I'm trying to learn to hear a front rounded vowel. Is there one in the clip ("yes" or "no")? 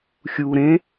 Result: no